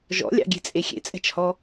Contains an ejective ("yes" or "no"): yes